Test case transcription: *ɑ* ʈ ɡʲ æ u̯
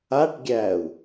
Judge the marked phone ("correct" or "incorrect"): incorrect